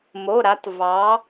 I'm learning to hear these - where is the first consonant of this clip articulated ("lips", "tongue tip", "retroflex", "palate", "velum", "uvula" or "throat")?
lips